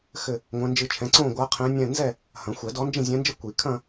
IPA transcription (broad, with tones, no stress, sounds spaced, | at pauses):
x ɘ˥˧ | ŋʷ ɛ̃˧˥ n d͡ʒ ɨ˥˧ t͡ʃʰ ɛ̃˧˥ ǀ õ˥˧ ɡʷ a˧˥ qʰ ɛ̃˧˥ nʲ ɛ̃˥˧ n z ɛ˥˧ | h ɐ̃˨˩˦ xʷ ɛ˨˩˦ d ɔ˧˥ n d͡ʒ ĩ˥˧ zʲ ɛ̃˧˥ n d͡ʒ ɘ˥˧ kʷ i˨˩˦ kʰ ɐ̃˥˧